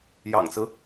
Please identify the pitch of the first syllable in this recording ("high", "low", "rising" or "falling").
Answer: low